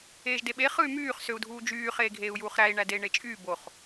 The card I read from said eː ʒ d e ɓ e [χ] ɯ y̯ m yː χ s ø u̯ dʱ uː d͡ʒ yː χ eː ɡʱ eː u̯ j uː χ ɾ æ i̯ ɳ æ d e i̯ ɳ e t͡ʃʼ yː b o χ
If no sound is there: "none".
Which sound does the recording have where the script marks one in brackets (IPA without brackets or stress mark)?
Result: χ